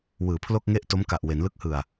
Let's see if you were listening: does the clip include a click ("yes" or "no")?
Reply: no